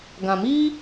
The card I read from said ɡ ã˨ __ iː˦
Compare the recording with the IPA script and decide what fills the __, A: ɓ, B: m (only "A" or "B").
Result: B